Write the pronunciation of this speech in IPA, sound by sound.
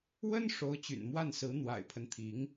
w ə˥ n ʂ o˧˥ ʊ̯ t͡ɕ y̰˨˩ n m w a˥˩ n s ɹ̩˧˥ n̪ w a̰˨˩ ɪ̯ pʰ ə˦ n t̪ʰ i˧˥ ŋ

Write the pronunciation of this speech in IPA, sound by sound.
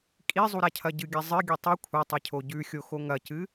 kʼ i zˤ u ɾ a cʰ ɐ ɟ ɨ ɡʲ a zˤ ɨ ɡʲ o tˤ ʉ kʷʰ ɐ tˤ e cʰ o ɟ ʉ xʲ o x o ŋ ɐ c ɨ

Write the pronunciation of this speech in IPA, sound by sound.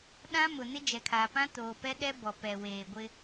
ɗ ã˦ m ʊ˨ n ɪ˦ d͡ʒ ɛ˨ kʰ aː˨ p ã˦ t oː˨ p ɛ˦ ɗ ɛ˦ b ɔ˨ p ɛ˨ w eː˨ ɡʷ ɪ˦

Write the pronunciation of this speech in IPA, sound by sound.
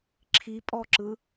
ǁʰ i pʼ ɔ ǁ ɯ

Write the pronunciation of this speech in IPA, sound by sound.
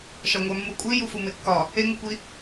ʃ ɒ ŋʷ æ mː u kʷʼ i j u f u m e kː ɒ | e ŋ u kʷ i

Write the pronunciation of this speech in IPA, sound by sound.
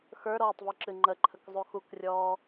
x ə˞ ɾ ɔː tˤ v y ǁ ɨ ŋ͡ǃ ə ǃʰ ə k zˤ u x u k rʲ ɔː

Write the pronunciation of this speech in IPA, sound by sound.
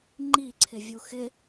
ŋ͡ǃ i ǀʰ ɪ vʲ u x ɪ

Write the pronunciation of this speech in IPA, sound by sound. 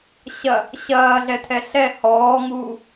ɕ ɐ | ɕ ɐː ɮ ɛ tʰ ɛ ɬ ɛ h ɔː ŋ uː

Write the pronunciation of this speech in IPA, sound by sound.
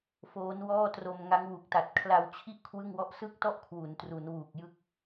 f oː˦˥ n w ɔː˥˩ t r o˧ m ŋ a˦˥ ŋ w u˨˩ k̚ t a˨˩ t̚ kʰ l a˧ w t͡ɕʰ i˥˩ ʔ kʰ w ɯ˥˩ ŋ w ɔ˥˩ ʔ s ɯ˥˩ k̚ t ɔ˥˩ ʔ kʰ w u˩˦ n t r u˩˦ n w uː˨˩ k̚ j ɯ˥˩ k̚

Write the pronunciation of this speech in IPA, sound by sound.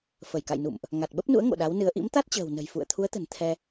f ə˧˩ j k a̰˧˨ j n ṵ˧˨ m ʔ | ŋ a˨˩ t̚ ɓ ə˦˥ p̚ n ṵ˧˥ ə̯ ŋ o̰˧˨ ɗ a˨˦ w n ɨ˨˦ ə̯ ʔ ḭ˧˥ m t̪ a˦˥ t̚ t͡ɕ ə̤ː˨˩ w n ə̤˨˩ j f ṵ˧˨ ə̯ t̪ʰ u˨˦ ə̯ t̪ ə̤˨˩ n t̪ʰ ɛ˧

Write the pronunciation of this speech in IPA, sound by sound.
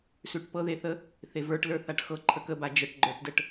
s ʉ ʈ p ɤ ð e θ ə | θ e v ə˞ ʈ l ə˞ θ a ʈ x ɤ ǃʰ ə k ə b a d͡ʒ ə ʈ ɡ͡ǃ ə˞ ʈ d ə ʈ

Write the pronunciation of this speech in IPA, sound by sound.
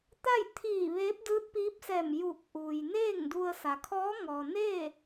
t̪ a˥˨ j t̪ʰ iː˧˩ ʋ eː˧˥ p̚ d ɯː˧˥ t̚ p iː˧˥ p̚ s ɛː˧˩ m j uː˧˩ k̚ ʔ uː˩ j n eː˥˨ ŋ d u˧ ə̯ s a˩ kʰ ɔː˧˥ ŋ ɔː˩ n eː˥˨

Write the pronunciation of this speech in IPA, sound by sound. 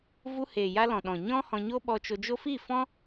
v u˧ h eː˨ j a˧ l ɔ̃˨ ɗ ɔ̃˨ ɲ ɔ̃˦ h ɔ̃˧ ɲ o˦ ɓ ɔ˧ t͡ʃ o˧ d͡ʒ o˦ f iː˦˨ f ɔ̃˦

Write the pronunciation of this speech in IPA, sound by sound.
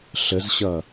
ɬ ə z ɕ ʌ

